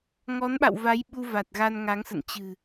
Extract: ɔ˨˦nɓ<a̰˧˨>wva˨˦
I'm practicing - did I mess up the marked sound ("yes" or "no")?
no